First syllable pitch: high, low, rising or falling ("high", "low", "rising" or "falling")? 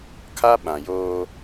high